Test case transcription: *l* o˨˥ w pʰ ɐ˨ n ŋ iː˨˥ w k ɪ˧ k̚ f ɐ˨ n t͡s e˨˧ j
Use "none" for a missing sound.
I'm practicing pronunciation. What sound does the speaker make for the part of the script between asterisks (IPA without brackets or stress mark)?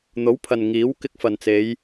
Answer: n̪